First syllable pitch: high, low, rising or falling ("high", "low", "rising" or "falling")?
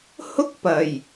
high